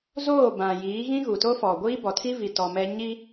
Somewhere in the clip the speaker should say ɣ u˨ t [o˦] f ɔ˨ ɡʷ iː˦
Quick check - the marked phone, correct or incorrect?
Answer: correct